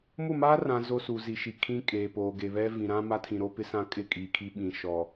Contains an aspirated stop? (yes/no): yes